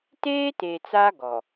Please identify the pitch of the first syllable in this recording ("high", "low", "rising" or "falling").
high